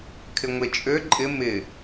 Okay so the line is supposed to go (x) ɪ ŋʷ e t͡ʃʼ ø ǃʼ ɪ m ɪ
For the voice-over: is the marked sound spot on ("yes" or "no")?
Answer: no